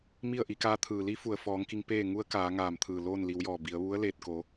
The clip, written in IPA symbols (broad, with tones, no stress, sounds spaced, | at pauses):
m i˥˨ ə̯ ʔ i˩˧ k aː˧˥ t̪ʰ ɯː˩ l i˧˥ f u˩ ə̯ f ɔː˩˧ ŋ k i˧ ŋ p eː˥˨ ŋ u˧˥ ə̯ k aː˩˧ ŋ aː˧˩ m t̪ʰ ɯː˧˩ l oː˥˨ n l i˩˧ w j ɔː˧˩ b i˩˧ ə̯ ʋ u˧˥ ə̯ l eː˧˩ t̚ k o˩˧